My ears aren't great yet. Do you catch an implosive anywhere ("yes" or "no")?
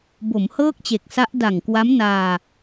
no